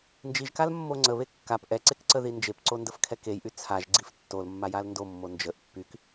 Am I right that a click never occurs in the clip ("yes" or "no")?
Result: no